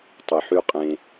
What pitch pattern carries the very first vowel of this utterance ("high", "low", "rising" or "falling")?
low